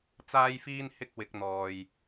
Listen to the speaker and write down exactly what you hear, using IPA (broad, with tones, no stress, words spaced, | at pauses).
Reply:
t͡saː˥jfiː˥n hɪ˥k̚ wɪ˨˥k̚n̪ɔː˨j